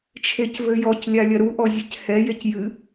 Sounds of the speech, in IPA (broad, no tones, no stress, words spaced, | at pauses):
t͡ʃʰecvɘjɔclʲa lʲɐɾuʔɔ zʲɛchɛjec jɨ